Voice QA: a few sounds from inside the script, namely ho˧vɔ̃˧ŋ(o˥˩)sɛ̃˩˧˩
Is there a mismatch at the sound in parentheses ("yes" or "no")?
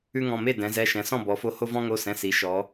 yes